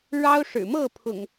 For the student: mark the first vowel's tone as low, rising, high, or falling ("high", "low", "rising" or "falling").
high